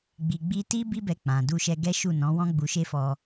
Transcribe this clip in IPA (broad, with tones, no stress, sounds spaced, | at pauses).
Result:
ɡ͡b i˨ ɡ͡b i˧ t i˦ b i˦ b ɛ˧ k͡p ã˨ d u˧ ʃ ɛ˧ ɡ ɛ˦ ʃ u˦˨ n ɔ̃˨˦ w ɔ̃˦ ɡ͡b u˧ ʃ e˦ f ɔ˧